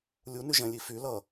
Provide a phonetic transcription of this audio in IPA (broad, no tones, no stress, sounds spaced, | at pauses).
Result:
lʲ u n y ʒ ɛ̃ lʲ i f y l ʌ